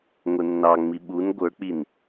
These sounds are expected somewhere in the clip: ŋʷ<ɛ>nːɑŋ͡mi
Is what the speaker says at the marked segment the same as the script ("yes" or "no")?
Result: yes